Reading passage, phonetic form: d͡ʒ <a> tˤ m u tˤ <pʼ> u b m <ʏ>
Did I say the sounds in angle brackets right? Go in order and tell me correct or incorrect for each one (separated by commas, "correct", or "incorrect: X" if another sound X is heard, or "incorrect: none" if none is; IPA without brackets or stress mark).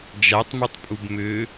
correct, correct, correct